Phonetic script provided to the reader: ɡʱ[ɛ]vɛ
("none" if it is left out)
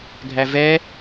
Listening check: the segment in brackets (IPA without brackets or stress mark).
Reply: æ